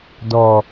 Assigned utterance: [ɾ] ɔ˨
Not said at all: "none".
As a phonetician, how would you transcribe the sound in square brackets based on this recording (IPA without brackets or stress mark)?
d